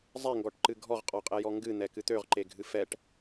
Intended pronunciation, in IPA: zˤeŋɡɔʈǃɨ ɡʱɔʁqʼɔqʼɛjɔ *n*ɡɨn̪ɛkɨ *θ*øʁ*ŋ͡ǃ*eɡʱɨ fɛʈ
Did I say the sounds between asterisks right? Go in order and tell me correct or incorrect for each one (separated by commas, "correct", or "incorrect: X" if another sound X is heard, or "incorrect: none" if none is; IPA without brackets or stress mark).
incorrect: ŋ, incorrect: t̪, incorrect: ǃ